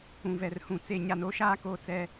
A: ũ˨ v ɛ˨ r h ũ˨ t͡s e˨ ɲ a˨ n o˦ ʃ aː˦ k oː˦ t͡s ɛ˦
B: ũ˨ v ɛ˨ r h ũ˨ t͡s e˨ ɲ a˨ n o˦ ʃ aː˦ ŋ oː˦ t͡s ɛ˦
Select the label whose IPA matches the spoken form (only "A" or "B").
A